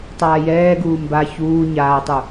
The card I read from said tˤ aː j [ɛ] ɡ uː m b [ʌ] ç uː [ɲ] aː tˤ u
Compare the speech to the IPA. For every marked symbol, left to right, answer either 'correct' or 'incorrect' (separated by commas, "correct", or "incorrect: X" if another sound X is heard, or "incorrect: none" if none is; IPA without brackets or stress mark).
incorrect: ɛː, incorrect: a, correct